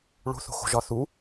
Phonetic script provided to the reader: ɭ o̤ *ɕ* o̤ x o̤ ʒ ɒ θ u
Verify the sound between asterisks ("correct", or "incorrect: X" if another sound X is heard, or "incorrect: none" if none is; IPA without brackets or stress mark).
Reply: incorrect: θ